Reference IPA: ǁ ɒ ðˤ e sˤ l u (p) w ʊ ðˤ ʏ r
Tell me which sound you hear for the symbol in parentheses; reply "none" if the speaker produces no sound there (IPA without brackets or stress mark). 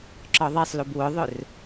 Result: b